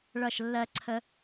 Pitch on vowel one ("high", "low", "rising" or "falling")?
falling